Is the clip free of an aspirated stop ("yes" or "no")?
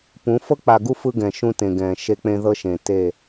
yes